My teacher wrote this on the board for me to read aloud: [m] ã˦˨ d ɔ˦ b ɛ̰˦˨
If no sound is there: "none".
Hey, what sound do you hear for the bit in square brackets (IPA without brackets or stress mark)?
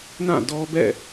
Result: n